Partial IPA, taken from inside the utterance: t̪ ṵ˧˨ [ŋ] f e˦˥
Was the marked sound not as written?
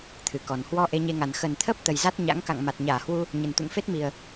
no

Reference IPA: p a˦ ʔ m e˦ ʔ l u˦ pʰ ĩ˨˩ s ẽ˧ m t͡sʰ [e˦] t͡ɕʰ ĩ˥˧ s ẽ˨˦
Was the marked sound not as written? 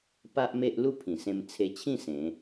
yes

